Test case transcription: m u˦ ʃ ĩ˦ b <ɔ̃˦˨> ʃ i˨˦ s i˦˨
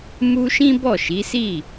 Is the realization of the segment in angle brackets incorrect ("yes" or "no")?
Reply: yes